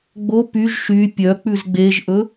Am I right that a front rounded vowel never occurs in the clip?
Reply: no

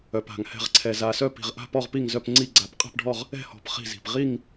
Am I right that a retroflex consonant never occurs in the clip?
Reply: no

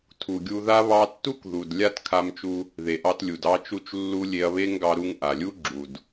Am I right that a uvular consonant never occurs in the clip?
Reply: yes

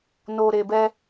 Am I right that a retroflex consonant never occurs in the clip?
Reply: yes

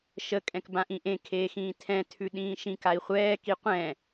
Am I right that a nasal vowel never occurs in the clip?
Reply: no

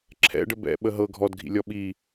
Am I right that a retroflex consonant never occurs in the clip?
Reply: no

